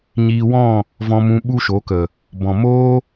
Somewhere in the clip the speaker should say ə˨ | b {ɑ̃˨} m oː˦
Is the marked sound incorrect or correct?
incorrect: ɔ̃˨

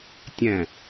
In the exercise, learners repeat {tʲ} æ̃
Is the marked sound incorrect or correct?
correct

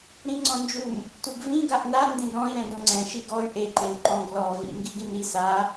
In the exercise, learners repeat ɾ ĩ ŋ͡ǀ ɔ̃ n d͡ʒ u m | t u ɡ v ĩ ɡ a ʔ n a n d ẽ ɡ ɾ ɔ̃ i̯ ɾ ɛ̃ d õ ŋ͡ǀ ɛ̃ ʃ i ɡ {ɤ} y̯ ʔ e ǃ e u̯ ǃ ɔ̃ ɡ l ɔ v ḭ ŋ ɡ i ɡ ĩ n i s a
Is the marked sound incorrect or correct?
incorrect: ɔ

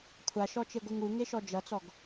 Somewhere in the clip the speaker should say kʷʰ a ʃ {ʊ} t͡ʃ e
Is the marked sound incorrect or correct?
incorrect: ɔ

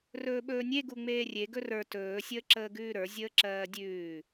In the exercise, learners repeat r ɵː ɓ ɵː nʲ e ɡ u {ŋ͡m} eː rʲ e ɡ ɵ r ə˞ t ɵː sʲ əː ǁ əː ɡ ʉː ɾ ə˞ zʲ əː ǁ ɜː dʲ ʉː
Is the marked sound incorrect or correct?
correct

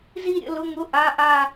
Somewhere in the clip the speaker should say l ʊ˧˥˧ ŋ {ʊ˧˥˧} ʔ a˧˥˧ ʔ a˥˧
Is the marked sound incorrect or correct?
correct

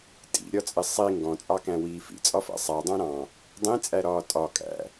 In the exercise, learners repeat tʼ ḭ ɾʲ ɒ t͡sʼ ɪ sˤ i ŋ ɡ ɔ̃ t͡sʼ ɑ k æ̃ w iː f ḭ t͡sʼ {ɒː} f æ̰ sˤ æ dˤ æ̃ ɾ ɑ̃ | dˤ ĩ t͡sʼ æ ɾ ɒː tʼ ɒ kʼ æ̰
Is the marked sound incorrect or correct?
incorrect: ɒ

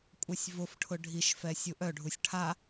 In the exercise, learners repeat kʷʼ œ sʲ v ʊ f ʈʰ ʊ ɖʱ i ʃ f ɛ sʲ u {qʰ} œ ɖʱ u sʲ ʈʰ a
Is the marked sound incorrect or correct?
incorrect: ʔ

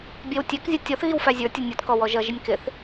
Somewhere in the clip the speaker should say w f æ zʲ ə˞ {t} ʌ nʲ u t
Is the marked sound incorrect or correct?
incorrect: tʲ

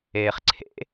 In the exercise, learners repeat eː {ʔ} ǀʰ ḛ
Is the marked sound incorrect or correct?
incorrect: χ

